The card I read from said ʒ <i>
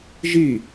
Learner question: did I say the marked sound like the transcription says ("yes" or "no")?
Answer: yes